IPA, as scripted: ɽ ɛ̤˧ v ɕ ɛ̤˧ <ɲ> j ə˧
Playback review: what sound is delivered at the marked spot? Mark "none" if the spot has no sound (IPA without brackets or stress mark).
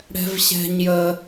ɲ